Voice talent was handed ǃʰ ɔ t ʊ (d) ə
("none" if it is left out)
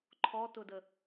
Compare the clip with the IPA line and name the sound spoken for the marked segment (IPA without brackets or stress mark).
d